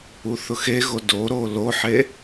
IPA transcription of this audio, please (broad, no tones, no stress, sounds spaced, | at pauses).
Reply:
u θ ʊ x e ɣ o d o ɾ o l o ħ e